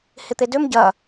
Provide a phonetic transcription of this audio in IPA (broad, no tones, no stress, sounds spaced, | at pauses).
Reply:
h ɪ t̪ e d ø m ɟ ɐ